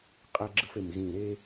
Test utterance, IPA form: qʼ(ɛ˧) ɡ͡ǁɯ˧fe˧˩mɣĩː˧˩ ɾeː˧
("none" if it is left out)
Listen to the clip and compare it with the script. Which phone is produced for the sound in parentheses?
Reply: ɛ˧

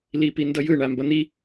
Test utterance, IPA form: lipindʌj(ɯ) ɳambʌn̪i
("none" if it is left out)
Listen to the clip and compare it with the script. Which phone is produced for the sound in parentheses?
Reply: ɯ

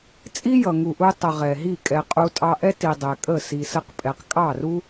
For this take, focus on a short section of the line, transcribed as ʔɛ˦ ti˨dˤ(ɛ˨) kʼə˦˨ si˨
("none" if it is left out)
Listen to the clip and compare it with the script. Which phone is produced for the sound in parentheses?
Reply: ɛ˨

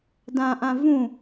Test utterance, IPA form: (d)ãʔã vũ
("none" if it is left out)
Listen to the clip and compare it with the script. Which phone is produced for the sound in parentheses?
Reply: d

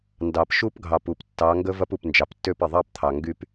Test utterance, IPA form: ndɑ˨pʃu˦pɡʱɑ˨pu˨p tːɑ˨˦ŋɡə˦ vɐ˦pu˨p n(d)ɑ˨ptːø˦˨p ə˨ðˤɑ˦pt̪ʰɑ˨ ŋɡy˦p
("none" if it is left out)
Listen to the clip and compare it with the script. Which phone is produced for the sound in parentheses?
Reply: d͡ʒ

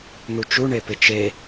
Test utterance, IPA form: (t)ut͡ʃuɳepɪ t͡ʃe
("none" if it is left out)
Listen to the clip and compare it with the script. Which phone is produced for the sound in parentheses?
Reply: n̪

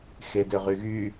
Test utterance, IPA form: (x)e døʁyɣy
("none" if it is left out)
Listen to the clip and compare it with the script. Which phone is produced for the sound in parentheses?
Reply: x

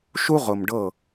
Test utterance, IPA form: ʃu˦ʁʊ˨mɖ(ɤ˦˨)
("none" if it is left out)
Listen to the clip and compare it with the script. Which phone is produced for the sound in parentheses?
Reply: ɤ˦˨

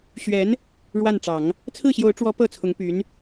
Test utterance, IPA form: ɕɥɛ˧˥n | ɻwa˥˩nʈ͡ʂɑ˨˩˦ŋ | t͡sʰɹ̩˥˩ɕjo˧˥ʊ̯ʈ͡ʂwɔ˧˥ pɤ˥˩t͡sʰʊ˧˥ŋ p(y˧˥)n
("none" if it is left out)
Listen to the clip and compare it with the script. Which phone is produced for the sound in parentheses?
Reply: y˧˥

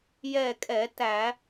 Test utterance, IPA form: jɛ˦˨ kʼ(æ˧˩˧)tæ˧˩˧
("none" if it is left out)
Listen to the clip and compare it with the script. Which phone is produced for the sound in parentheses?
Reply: ɛ˧˩˧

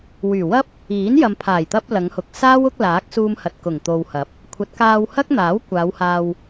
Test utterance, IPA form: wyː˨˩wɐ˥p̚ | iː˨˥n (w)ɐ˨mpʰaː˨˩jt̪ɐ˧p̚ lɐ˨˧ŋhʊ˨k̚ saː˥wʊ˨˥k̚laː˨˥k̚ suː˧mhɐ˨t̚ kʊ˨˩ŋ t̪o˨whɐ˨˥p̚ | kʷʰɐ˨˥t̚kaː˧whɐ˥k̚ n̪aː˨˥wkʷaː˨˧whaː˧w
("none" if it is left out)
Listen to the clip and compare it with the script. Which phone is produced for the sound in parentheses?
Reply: j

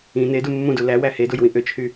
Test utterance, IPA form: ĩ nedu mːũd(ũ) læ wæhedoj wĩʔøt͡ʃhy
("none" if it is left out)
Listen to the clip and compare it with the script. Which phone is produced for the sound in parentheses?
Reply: u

